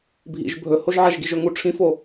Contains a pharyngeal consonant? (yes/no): yes